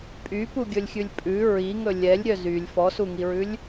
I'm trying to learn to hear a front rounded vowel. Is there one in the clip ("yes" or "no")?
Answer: yes